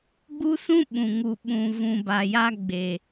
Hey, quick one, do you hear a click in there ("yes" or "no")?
no